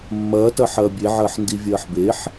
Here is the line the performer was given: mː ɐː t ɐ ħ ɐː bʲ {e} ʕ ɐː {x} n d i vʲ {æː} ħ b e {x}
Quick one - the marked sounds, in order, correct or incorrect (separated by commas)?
correct, incorrect, incorrect, incorrect